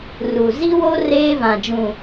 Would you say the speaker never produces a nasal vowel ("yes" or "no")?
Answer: no